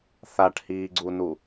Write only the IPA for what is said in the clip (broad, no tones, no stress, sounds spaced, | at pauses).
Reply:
θ a ʈ h iː ɡ͡ǀ u n u